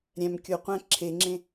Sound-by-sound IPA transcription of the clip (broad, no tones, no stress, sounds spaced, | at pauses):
ɾʲ æ̃ m kʲ o qʷ æ̃ ǁʰ e ŋ͡ǁ ẽ